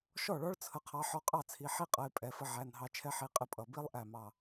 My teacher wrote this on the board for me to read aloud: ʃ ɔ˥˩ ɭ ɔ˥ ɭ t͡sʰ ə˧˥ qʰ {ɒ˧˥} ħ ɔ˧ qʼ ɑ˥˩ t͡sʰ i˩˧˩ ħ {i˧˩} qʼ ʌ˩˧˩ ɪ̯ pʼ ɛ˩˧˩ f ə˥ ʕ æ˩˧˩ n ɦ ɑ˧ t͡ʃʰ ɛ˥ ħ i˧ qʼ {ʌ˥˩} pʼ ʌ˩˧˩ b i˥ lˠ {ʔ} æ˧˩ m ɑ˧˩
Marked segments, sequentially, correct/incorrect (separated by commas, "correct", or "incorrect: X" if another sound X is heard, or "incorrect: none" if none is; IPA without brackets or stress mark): incorrect: ɑ˧˥, incorrect: i˥, incorrect: ə˥˩, correct